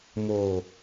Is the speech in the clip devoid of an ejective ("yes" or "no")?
yes